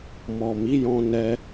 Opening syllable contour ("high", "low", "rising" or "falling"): low